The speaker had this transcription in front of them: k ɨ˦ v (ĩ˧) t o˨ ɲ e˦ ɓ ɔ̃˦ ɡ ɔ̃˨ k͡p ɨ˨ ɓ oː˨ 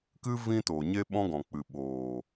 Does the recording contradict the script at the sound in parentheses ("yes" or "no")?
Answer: yes